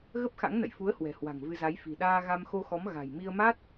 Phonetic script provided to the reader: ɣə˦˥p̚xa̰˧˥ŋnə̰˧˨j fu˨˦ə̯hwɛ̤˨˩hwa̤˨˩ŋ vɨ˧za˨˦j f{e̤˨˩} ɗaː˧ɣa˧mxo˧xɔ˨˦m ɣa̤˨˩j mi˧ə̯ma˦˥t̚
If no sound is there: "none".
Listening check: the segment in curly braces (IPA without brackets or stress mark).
i̤˨˩